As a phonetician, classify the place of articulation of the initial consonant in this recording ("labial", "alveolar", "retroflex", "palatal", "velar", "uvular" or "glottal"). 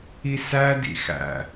alveolar